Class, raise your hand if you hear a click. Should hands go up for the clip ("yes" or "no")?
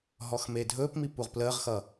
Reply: no